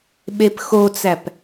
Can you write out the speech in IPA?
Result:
ɓ e p x o t͡s æ p

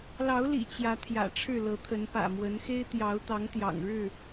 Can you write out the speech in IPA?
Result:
l ɑ˨˦ ʊ̯ l ḭ˨˩ t͡ɕ j ä˨˦ t̪ʰ j ä̰˨˩ ʈ͡ʂʰ ɻ̩˥˨ l ɤ˨˦ t̪ʰ ə˨˦ n p ä̰˨˩ m w ə˨˦ n x e˦ ɪ̯ t̪ j ɑ˨˦ ʊ̯ t̪ ɑ˨˦ ŋ t̪ j ɑ̰˨˩ ŋ ɻ ɻ̩˥˨

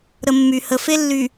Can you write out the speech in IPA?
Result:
ɾ ə˨ mː y˨ h ə˨ f e˦ lː y˨

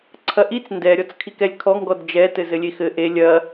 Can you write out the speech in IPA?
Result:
ǀʰ ɐ ʔ i t͡s n d ɛ ɾʲ ɔ t͡s kʰ i k ɛ lʲ kʰ ɔ ŋ ɡ ɔ d d͡ʒ ɛ t ɘ z ɘ lʲ e x ɘ ʔ e lʲ ɐ

